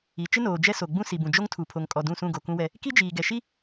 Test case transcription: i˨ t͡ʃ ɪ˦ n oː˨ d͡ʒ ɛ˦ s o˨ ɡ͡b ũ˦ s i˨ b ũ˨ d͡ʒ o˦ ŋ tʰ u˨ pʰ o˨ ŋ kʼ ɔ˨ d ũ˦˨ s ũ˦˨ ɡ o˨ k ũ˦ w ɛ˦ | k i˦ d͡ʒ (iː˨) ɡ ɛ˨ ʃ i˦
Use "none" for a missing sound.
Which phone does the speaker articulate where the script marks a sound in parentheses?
iː˨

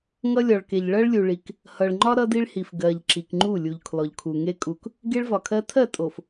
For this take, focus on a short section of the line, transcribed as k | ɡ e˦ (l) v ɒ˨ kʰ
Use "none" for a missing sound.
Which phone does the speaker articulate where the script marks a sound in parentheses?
ɭ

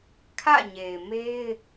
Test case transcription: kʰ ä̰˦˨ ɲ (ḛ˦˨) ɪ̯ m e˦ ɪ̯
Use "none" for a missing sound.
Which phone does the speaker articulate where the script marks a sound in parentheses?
e˨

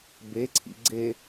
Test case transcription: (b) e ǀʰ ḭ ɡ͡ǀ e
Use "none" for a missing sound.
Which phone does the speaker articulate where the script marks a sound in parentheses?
b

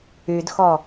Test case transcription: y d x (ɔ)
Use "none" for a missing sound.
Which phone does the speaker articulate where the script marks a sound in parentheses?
ɔ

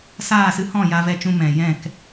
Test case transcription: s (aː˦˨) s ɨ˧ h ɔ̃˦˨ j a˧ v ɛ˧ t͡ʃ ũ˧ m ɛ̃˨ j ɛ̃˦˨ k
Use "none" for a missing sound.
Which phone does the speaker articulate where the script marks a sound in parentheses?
aː˦˨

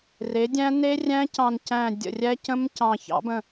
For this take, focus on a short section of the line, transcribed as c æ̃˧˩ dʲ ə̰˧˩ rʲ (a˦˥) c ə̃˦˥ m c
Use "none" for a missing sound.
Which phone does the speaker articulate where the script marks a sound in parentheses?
æ˦˥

